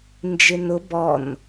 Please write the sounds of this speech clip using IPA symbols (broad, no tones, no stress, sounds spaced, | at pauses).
n d͡ʒ ɪ n ʊ b ɔ n